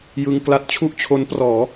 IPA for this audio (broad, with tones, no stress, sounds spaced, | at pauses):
j ɯ˧ ŋ k l a˦˥ t̚ t͡ɕʰ u˥˩ ʔ t͡ɕʰ o˦˥ n p r ɔː˩˦